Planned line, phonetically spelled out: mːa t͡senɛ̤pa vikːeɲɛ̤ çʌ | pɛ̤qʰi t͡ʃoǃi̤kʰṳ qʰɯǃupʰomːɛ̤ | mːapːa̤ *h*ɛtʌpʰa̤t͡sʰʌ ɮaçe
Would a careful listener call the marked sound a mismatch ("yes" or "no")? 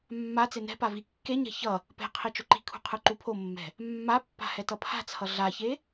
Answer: no